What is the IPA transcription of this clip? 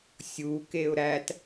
sʲukeʊ̯ ɾæt

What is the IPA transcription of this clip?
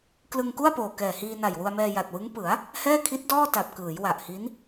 klɯ˧ŋku˥˩a̯poː˨˩ kɛː˨˩hiː˧ na˨˩jwu˧a̯mɛː˧ ja˨˩t̚wɯ˦˥ŋ pɯ˩˦a̯ | hɛː˥˩kʰi˦˥t̚dɔː˥˩ta˨˩p̚ kɯː˩˦j wa˨˩ʔhi˦˥n

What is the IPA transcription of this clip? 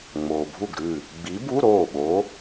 ŋ͡moː˩bʱu˥˩ɡ ɾʉ˥˩ | ɡ͡bi˨˥bu˧˥˧ ɾoː˥˩ɓo˨˥

